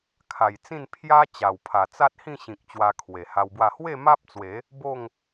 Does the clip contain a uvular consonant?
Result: no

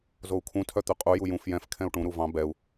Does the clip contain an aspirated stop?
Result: yes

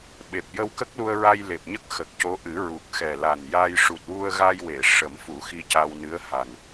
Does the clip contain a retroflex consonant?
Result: yes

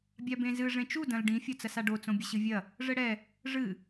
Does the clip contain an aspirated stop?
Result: no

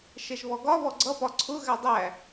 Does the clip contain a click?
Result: yes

